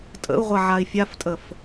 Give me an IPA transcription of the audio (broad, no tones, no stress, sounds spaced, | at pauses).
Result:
tʼ ə̰ u̯ ʁʷ a ʕ a i̯ fʲ a f tʼ ə f